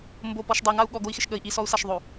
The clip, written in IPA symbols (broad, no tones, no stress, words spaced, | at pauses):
mbopɔʃ dˤɛŋau̯ ɠɔɡoi̯xɪʃ ɠəi̯ ʔisɔu̯saʃðˤo